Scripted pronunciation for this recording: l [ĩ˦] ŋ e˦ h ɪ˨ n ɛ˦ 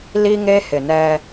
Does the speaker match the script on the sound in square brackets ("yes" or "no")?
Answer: no